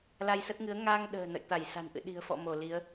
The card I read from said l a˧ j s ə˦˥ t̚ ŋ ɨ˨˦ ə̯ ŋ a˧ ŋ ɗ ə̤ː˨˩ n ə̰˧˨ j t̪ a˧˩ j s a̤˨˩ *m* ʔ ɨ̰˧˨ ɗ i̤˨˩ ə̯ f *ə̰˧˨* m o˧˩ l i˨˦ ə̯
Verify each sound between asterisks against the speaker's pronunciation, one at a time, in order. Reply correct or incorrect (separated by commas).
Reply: incorrect, incorrect